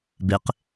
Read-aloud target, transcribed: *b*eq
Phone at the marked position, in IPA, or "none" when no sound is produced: b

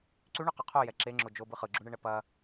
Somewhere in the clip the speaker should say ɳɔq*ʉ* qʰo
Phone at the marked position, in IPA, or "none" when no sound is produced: ʉ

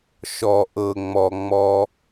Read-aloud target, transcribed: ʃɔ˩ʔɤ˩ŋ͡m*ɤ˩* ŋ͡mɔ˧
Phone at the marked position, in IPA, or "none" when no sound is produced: ɔ˩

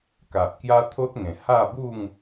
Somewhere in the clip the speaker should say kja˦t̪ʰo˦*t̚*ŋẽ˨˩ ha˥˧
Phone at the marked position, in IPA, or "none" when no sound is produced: t̚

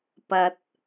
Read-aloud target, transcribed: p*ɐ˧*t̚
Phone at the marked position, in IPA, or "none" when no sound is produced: ɐ˧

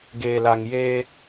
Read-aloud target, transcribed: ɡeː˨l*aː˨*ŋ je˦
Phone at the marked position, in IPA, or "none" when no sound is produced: a˨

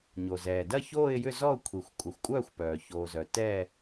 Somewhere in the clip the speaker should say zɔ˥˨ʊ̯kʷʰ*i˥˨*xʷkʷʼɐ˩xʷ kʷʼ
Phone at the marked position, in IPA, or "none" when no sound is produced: i˩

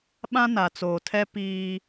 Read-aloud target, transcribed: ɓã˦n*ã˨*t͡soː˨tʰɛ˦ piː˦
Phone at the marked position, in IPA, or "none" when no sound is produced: a˨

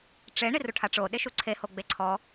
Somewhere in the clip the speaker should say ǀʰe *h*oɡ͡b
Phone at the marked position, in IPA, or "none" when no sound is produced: h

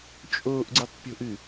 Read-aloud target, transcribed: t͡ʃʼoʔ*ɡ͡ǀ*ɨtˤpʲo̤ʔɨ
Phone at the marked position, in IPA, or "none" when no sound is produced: ɡ͡ǀ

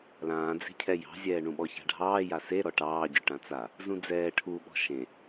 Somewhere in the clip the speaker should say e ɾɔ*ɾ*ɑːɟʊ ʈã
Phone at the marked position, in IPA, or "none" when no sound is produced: ʈ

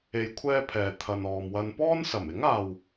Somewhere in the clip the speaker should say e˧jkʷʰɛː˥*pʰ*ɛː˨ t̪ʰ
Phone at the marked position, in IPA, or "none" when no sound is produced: pʰ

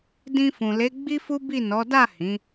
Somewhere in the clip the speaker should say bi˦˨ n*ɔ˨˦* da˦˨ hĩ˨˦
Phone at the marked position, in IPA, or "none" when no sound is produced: ɔ˨˦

